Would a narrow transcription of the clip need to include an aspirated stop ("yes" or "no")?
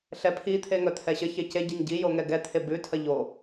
yes